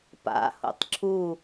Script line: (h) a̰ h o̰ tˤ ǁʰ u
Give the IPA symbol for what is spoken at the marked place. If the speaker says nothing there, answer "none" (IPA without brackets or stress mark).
p